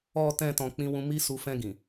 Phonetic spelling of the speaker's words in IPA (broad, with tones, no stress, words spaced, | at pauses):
ɔ˨tɛ̃˨ tɔ̃˨k͡pĩ˧ wũ˧mi˦su˧ fɛ̃˧ɡĩ˨